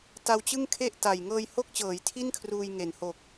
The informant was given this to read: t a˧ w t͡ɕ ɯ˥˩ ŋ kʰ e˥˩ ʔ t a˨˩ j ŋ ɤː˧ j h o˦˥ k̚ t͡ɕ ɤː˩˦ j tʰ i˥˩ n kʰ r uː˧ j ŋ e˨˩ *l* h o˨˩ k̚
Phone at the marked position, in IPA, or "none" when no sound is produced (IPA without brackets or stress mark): n